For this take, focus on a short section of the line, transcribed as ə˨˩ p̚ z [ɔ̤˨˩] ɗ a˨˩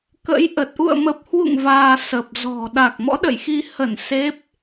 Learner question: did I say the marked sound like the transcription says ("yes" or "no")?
yes